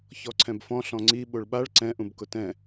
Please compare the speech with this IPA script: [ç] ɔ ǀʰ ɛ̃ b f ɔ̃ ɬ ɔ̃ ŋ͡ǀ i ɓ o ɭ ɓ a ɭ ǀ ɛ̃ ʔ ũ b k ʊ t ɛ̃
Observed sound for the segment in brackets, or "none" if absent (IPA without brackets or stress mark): ç